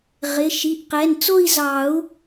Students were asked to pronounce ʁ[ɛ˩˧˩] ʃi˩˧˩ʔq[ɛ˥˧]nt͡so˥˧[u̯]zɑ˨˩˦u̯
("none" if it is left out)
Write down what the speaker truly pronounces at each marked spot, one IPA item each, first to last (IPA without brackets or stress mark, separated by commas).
ɪ˩˧˩, ɛ˩˧˩, i̯